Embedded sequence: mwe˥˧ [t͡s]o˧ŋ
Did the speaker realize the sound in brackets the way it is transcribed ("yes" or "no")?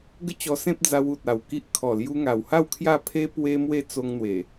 yes